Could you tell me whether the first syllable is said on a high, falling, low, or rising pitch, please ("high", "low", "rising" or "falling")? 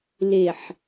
low